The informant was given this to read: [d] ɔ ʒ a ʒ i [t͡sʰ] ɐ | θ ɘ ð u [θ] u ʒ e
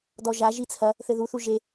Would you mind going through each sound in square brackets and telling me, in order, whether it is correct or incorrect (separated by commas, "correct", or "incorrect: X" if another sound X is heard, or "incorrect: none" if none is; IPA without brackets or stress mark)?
correct, correct, correct